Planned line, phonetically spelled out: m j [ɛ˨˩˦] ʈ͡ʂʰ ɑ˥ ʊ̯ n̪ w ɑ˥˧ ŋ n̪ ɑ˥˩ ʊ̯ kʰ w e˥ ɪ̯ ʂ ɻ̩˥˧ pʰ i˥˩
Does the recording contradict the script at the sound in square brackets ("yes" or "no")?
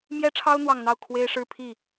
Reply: yes